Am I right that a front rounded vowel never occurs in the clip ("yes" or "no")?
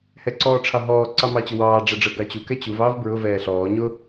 yes